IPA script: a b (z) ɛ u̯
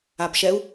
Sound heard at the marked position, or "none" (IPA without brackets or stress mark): ʃ